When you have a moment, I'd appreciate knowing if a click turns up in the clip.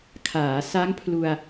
no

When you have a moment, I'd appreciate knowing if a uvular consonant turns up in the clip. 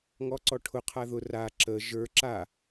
yes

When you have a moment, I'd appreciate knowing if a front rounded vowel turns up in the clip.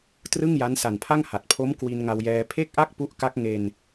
no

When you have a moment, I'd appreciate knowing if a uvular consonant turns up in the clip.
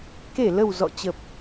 no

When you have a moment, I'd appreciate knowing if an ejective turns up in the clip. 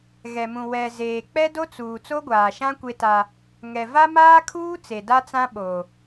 no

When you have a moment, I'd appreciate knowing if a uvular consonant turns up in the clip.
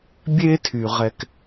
yes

